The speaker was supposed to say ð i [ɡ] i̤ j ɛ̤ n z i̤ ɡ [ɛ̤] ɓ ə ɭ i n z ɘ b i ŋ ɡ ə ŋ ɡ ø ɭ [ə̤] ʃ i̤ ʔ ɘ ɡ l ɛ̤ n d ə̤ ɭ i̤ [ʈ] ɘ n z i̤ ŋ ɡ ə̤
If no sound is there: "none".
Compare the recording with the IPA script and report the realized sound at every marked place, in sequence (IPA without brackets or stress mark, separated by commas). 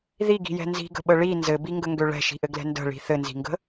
ɡ, ə̤, ɛ̤, θ